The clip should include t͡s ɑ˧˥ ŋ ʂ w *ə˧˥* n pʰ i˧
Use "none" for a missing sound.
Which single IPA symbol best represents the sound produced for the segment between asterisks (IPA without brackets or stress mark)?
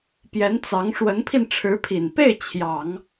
ə˧˥